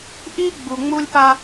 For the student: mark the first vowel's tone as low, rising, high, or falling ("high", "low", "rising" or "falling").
high